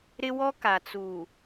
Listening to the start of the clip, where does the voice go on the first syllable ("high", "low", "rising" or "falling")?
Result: high